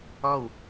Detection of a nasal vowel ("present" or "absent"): absent